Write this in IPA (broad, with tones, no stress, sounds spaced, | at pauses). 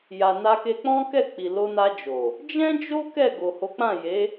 j a˨ n a˧ k e˧ k͡p ɔ̃˦ k ɛ˦˨ k͡p i˨ l o˧ n a˧ d͡ʒ o˨ | d͡ʒ ɛ̃˦ d͡ʒ o˦ k ɛ˦˨ ɡ o˨ h o˨˦ k͡p ã˦˨ j e˨˦